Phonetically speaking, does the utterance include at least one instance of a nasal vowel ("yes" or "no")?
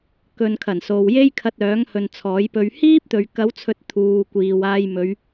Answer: no